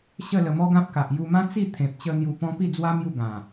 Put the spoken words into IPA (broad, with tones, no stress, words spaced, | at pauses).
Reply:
ɕə˥˧lə˧mɔ˦ɡã˦p̚ ka˨ʔju˧mã˦ t͡si˥˧ t̪ʰẽ˨p̚ t͡ɕə˦ n̪ju˧pɔ̃˦ pi˥˧d͡zwa˦ mju˥˧ɡã˨˩